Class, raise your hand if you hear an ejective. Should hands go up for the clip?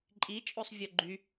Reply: yes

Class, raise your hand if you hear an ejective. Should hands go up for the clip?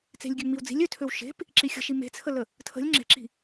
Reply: no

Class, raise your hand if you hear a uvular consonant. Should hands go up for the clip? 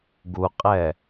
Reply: yes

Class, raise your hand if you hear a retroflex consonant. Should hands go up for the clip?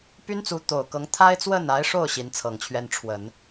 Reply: yes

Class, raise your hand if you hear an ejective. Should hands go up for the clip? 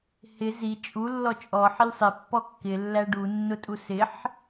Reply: yes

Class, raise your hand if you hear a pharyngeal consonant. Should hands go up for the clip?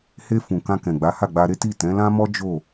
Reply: no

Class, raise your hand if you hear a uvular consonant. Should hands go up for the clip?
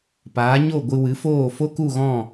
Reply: no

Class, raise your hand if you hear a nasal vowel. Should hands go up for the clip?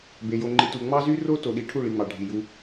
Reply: no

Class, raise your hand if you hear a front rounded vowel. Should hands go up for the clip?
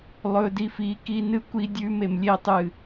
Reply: no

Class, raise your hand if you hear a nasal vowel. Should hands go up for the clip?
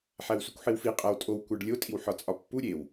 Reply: no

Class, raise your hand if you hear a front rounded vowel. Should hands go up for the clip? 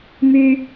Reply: yes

